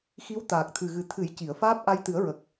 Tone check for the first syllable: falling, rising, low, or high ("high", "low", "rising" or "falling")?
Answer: rising